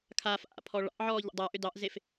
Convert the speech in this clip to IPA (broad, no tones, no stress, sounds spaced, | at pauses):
kʰ aː f ʔ a̰ pʰ ɔ ɭ ɑ̰ ʔ ʕ ɔː ʎ ə̰ dˤ aː ʔ ʏ d ɑ ʔ z e f